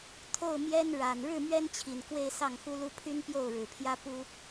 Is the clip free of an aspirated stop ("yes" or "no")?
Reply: no